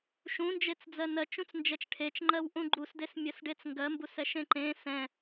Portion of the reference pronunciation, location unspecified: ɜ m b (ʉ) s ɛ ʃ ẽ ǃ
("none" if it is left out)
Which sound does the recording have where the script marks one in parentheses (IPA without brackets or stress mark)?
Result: u